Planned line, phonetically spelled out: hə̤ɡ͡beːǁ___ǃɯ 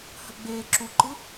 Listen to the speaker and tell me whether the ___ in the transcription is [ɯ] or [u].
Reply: u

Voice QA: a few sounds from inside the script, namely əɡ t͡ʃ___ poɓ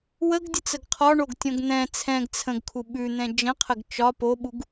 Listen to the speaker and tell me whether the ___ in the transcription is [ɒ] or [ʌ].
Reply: ɒ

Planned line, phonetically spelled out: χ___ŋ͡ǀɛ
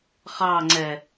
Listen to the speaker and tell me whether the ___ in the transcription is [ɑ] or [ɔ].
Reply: ɑ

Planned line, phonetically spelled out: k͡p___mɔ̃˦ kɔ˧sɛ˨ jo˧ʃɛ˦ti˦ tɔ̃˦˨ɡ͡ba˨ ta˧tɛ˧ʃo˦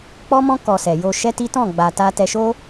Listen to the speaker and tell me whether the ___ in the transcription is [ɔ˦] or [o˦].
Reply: ɔ˦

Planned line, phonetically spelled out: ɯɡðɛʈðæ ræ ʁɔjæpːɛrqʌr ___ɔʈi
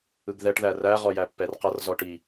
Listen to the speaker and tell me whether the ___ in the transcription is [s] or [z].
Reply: z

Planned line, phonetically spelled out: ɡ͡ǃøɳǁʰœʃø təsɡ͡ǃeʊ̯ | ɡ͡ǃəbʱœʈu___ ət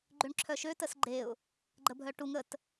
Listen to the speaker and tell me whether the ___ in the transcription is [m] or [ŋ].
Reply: ŋ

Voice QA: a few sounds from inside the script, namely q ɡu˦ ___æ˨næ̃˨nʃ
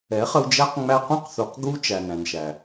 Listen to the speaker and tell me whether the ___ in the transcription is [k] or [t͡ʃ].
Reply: t͡ʃ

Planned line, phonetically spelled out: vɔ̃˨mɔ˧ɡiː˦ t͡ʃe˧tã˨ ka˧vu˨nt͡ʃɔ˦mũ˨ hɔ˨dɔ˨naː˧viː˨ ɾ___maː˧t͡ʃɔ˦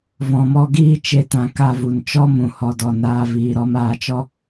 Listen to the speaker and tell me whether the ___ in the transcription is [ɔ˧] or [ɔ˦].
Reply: ɔ˧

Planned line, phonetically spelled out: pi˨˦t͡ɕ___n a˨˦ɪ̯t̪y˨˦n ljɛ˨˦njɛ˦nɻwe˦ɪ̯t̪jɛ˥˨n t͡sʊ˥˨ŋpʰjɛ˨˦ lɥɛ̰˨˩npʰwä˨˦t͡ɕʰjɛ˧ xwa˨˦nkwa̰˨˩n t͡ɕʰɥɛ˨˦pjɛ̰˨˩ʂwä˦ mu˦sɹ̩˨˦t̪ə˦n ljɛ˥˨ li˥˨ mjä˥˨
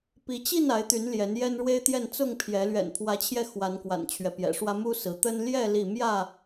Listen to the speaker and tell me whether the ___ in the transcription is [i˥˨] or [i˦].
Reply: i˥˨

